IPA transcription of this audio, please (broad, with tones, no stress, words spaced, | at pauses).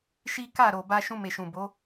ʃi˦ ka˦˨ɾo˨ ba˧ʃũ˧me˨ʃũ˨ bo˨˦